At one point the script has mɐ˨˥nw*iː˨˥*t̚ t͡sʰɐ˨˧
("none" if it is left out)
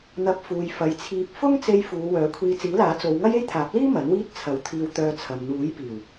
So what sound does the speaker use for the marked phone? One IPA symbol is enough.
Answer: iː˥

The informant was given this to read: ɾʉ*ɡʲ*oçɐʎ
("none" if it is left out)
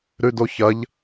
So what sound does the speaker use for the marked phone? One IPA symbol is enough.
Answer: d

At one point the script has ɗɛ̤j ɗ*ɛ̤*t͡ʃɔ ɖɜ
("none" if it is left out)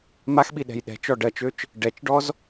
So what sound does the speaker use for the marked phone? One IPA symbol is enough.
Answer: ɛ̤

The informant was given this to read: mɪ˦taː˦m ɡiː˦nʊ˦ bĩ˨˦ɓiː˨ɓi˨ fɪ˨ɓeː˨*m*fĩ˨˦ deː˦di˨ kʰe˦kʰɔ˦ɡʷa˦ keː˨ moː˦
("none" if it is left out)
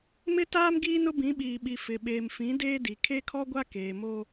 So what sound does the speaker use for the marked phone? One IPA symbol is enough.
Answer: m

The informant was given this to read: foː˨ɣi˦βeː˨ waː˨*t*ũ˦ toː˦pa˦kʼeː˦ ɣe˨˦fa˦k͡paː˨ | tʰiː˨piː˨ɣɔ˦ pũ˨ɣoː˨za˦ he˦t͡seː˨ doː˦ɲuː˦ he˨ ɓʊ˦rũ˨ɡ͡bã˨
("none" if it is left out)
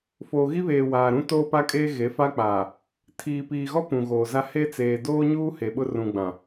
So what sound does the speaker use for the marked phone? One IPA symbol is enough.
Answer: ɾ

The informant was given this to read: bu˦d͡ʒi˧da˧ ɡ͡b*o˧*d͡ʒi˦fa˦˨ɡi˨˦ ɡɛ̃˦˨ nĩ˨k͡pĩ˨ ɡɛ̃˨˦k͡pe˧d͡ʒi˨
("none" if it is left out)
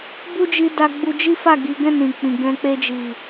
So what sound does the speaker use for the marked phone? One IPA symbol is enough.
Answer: u˧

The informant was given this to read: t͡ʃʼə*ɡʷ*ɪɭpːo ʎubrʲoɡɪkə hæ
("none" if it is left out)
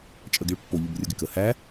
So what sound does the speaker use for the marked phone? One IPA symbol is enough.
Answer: ɡ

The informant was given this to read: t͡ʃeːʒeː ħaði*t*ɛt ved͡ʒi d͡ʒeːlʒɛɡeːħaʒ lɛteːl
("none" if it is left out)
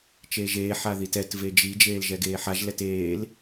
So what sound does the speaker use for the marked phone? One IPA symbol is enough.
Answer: t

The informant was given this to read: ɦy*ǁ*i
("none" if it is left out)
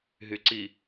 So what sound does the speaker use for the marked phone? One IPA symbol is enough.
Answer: ǀ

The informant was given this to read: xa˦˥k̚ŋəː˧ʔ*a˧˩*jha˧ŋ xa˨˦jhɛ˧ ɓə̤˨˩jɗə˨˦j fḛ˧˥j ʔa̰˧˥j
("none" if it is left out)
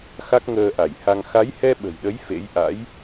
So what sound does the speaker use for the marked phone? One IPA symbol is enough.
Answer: a˧˩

